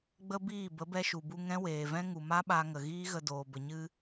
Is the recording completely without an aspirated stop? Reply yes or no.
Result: yes